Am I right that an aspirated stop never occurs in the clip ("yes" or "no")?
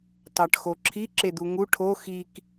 no